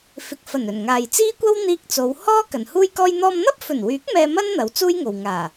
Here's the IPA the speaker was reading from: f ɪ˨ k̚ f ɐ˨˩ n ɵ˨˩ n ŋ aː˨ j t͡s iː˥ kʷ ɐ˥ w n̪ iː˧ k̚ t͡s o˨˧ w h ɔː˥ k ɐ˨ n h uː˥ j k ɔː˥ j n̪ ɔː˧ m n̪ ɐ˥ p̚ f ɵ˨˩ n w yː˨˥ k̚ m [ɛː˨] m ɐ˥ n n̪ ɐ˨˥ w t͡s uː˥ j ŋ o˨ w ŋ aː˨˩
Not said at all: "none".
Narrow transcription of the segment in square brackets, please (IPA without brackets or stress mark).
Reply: ɛː˧